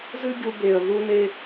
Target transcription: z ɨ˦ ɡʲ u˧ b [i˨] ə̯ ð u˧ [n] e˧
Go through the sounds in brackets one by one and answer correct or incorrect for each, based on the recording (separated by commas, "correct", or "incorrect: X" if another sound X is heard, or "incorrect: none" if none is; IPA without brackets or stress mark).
incorrect: e˨, correct